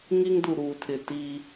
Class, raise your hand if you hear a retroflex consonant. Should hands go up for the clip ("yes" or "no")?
no